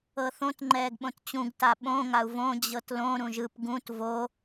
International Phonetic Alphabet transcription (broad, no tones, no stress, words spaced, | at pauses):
ɤθõt ŋ͡ǃɛːɡɓõtt͡ɕũɡ taɓõ ŋau̯võ d͡ʑɤtlõ ɾũʒɯp ɡũt vo